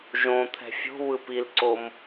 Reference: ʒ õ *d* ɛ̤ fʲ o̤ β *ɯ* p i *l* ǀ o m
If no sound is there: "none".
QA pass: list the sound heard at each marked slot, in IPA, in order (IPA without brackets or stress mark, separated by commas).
t̪ʰ, ɯ, l